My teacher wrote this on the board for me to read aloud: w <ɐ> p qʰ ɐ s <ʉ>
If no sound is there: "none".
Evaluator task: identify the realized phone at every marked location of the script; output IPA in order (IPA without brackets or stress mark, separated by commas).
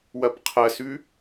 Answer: ɐ, ʉ